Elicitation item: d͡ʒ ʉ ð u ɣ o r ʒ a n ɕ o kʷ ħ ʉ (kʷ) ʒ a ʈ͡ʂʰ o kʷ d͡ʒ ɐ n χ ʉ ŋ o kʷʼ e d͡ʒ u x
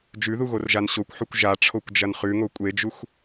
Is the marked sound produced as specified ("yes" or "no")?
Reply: yes